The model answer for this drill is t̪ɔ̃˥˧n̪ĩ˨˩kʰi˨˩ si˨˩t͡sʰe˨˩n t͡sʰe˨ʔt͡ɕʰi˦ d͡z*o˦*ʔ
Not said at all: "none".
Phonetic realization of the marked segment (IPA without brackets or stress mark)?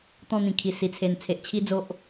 o˦